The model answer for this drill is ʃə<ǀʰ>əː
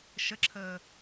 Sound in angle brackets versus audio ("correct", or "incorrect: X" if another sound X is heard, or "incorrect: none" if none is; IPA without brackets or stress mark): incorrect: ǁʰ